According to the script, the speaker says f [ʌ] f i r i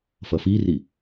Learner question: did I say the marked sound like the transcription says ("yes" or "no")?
yes